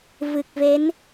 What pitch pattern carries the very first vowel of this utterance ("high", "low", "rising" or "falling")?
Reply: low